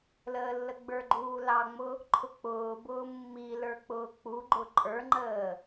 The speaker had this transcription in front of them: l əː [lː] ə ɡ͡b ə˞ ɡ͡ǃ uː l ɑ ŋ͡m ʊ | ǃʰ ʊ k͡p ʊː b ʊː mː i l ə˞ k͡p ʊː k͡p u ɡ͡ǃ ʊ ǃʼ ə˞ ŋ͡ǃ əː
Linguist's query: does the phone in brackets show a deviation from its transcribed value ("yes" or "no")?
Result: no